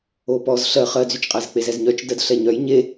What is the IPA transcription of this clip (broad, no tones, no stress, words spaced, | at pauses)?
opɔz ɬɜ χɜd͡zyt͡ʃqʼæz k͡pezɛzɲœt͡ʃ dɜdɬɛɲœj ɲe